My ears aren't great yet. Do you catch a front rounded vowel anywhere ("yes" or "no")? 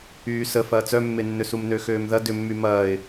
yes